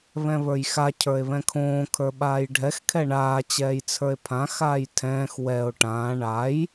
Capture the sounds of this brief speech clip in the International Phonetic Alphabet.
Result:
βɛ̃βə˞jxa cʰə˞e̯βɛ̃kʰõː kʰə˞ɓaːjɖʱɛx kʰɛɳaː t͡ɕɛːjt͡sʰə˞e̯pʰã xaːjtʰɛ̃ːx wɛo̯ ʈãː ɳaj

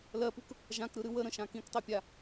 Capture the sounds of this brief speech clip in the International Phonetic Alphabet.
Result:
lɜpuk | ʒãkɾɯɾɨ wəɾə̃ʃã kĩktˤipʲa

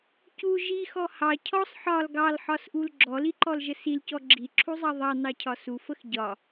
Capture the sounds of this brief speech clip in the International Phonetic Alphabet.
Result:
cu ʒixɔ hɑ cʰɔsˤ ħɒl ɡɑlħɒsʔul ɡ͡ǁɔliǃɔlʒə silcɔ ɡ͡ǁiǁʰuzˤɑ ðˤɑnɑcʰɒ sufəx ɟɒ

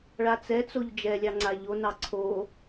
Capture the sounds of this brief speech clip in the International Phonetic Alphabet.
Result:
ɭat͡sɛt͡soʎ d͡ʒɛlʲɑ ŋ͡ǀaʎonɑ ǀʰo

